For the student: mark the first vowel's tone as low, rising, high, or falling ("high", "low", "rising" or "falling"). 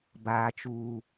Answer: high